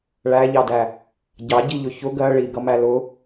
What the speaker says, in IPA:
ɭ æ ʎ ɑ d æ | ɟ ɑ ɟ i ʎ ʊ ç ʊ ɡ ɜ ɭ i ɡ ʌ m æ l ʊ

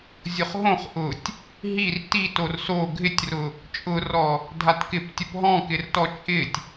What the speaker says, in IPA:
zʲ ʊ χ ɦ õ χ ʔ ʊ tʲ | ɦ i r t i t o r s o ɡʱ ɪ tʲ r ʊ | t͡ʃʼ ʊ r ɔ | dʱ a t k ɪ p tʲ ʊ p ɦ ɔ̃ k ɪ r t ɔ t͡ʃʼ ɪ tʲ

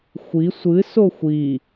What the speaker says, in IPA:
xʷ i sʷ ɨ s o xʷ i

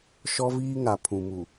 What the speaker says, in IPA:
ʃ ɔ˦ v iː˦ ŋ a˨ pʰ ũ˨ m u˨

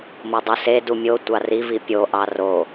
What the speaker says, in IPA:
m o dˤ u s e d u mʲ o tʷ ɑ r i v i pʲ o ʔ ɑ r o

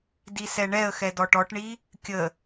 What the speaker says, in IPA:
d i s ɛ ɳ ɛ ə̯ x ɛ d ɔ ʈ ɔ ʈ ɳ i | kʲ ə

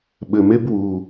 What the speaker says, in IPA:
ɓ ɘ m e b w u

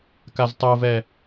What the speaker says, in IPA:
k a z tˤ o v ɛ

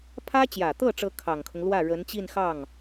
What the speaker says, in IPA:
pʰ ä˥ t͡ɕ j ä˨˩ t̪ ɤ˥˩ ʈ͡ʂ ɤ˧˥ kʰ ɑ˨˩ ŋ kʰ ʊ˦ ŋ l w ä˥˩ ɻ ə˧˥ n t͡ɕ i˥˧ n x ɑ˥˩ ŋ

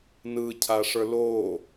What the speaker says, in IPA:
n ɯ cʰ a ʂ ə˞ l o

